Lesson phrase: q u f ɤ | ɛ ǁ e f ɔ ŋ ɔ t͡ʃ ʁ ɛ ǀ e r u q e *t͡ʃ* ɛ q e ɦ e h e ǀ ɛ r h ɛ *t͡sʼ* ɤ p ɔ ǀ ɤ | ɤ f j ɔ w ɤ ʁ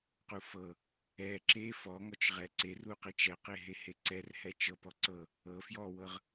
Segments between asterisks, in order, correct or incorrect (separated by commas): correct, incorrect